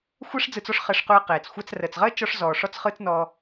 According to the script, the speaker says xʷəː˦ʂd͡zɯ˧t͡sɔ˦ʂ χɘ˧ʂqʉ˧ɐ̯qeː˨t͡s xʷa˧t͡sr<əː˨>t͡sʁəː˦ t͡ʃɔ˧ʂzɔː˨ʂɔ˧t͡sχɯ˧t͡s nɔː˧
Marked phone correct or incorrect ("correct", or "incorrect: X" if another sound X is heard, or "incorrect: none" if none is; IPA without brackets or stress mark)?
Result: correct